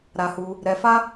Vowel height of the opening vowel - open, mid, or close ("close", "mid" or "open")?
open